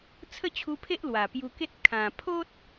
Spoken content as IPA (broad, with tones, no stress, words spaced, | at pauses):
t͡sʰə˥˧t͡ɕʰu˧pʰe˦ʔ lwa˨˩pju˧ke˦t̚ kʰã˨˩pʰo˦t̚